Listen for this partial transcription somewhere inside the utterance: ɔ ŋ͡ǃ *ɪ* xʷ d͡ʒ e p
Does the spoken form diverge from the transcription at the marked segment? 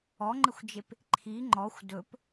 no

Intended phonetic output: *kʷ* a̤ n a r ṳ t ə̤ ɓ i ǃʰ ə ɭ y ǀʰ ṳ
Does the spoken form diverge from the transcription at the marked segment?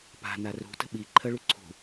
yes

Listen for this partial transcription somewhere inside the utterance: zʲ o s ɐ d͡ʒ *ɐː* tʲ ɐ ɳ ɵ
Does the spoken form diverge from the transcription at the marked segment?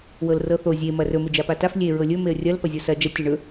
yes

